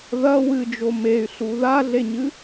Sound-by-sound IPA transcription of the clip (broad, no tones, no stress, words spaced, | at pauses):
ðɐ wɨd͡ʒo mey̯ɬu ðaɮeɲɨ